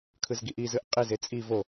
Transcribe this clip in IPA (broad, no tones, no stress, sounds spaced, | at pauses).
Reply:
kʰ ɯ z ɡ i ʔ i z ɯ ʔ qʼ i z e t͡sʼ i v o